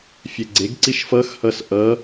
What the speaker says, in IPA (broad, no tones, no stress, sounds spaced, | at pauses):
fʲ ɛ ɡ͡ǀ e ɡ ǀ i ʃ f ʌ x h ʌ s ʔ ʌ